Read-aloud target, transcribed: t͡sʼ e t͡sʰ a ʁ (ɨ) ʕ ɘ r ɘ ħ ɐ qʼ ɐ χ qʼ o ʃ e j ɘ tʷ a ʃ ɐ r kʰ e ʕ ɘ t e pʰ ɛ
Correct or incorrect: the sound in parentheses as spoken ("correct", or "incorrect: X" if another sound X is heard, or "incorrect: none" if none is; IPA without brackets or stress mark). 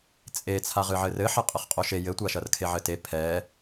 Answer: correct